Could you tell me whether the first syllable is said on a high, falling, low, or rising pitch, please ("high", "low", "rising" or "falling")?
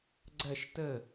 falling